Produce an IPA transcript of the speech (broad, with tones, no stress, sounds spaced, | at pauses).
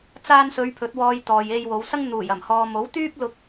t͡s aː˧ n s ɵ˨˧ ɥ pʰ ɵ˨˥ t̚ w ɔː˧ j t̪ ɔː˨ j e˧ j w o˨˧ w s ɐ˥ ŋ n̪ uː˨˩ j ɐ˨˩ m h ɔː˨ m o˨˥ w t̪ yː˥ p̚ l ʊ˧ k̚